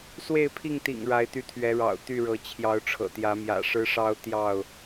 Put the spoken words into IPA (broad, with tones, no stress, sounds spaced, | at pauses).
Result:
s w e˥˨ ɪ̯ pʰ i˥˨ ŋ t̪ ḭ˨˩ ŋ ɻ a˨˦ ɪ̯ t̪ y˧ t̪ʰ ɥ ɛ˨˦ ɻ ɑ̰˨˩ ʊ̯ t̪ y˥˨ ɻ ɤ˨˦ t͡ɕʰ j ɑ˨˦ ʊ̯ ʈ͡ʂʰ ɤ̰˨˩ t̪ j ä˨˦ m j ä̰˨˩ ʂ ɻ̩˦ ʂ ɑ˦ ʊ̯ t̪ j ɑ˥˨ ʊ̯